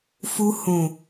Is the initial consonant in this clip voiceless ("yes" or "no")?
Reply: yes